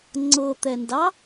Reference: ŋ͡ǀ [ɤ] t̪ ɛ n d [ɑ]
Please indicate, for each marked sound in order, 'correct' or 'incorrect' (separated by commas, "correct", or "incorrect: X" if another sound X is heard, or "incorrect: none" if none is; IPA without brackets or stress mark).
correct, correct